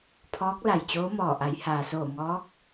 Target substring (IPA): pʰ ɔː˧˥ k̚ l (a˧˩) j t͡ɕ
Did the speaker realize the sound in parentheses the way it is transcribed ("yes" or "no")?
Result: yes